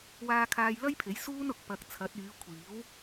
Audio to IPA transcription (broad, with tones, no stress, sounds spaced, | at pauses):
w aː˧ kʰ aː˧ j l ɐ˥ j pʰ e˨˥ j s uː˥ n ʊ˨ k̚ p ɐ˨ k̚ t͡sʰ ɐ˨˥ t̚ yː˨˧ kʷʰ iː˨˥ w